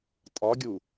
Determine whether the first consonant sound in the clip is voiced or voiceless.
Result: voiceless